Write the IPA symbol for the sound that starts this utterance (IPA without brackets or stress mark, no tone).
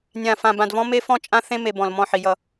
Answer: nʲ